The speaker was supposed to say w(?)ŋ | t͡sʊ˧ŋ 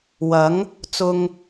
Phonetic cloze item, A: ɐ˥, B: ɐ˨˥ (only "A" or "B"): B